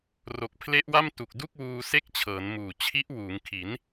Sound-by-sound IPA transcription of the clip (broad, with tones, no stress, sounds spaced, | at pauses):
r o˨˩ k̚ pʰ l e˦˥ ʔ w a˥˩ m t u˨˩ k̚ d u˥˩ k̚ w uː˧ s e˥˩ k̚ t͡ɕʰ ɤː˩˦ n m uː˨˩ t͡ɕʰ i˦˥ ʔ w uː˩˦ ŋ kʰ i˩˦ n